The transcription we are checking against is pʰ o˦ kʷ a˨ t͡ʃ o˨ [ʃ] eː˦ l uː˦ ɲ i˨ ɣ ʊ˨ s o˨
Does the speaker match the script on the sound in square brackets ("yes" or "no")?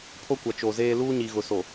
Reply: no